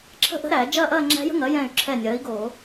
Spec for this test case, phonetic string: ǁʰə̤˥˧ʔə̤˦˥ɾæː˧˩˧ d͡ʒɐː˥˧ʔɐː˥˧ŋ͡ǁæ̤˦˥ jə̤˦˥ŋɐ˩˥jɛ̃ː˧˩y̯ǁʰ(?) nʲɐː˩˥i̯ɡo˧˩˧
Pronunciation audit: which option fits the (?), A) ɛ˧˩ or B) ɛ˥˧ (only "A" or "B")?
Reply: A